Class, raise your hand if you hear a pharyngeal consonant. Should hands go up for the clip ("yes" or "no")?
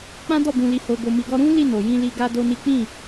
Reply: no